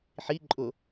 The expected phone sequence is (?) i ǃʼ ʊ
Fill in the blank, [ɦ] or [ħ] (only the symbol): ħ